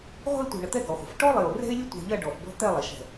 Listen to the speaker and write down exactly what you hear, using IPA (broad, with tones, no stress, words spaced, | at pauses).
ʁʷə̤˥˧ɪ̯tʷɛ̤˧˩ɳə˧˩ t̪ɛ˥ɡɔ˩˧χʷə̤˩˧f ʈɔ˥lˠe˧˩ʊ̯ rɛ̤˥ɪ̯lʲə˥ tʷɛ̤˧ʎɐ˥˧ ɖɔ˧˩fbɔ̤˥ t̪ɛ˥˧lˠɛ˩˧ʃɛ̤˧˩